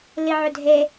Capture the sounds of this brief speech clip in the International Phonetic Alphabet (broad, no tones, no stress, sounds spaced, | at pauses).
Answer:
l i ʕ ʏ dʱ e